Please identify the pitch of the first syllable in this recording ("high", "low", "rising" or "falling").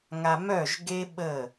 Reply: low